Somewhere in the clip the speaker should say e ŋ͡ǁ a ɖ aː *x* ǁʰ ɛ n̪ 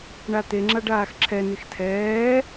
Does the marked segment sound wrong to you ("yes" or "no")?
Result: no